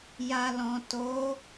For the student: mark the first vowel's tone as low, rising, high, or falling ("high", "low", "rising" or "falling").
low